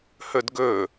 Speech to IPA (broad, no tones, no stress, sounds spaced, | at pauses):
h ɵ d ɡ ɵ